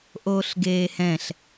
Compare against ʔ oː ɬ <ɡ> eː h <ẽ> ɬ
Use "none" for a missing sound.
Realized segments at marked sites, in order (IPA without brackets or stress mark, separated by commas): ɡ, ɛ̃